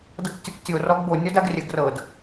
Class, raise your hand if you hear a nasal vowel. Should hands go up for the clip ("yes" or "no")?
no